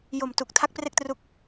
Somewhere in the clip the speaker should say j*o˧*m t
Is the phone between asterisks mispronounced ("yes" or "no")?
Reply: yes